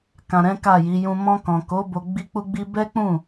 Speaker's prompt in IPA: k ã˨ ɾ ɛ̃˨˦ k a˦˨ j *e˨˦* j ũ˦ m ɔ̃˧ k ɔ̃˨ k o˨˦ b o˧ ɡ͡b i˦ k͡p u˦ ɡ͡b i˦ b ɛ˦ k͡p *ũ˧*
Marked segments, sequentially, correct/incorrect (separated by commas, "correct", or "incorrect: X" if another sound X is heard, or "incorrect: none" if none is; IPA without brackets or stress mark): incorrect: i˨˦, incorrect: ũ˦˨